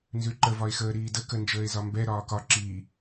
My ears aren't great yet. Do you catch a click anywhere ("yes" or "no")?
yes